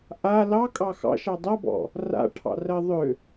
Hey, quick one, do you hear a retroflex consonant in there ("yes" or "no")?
yes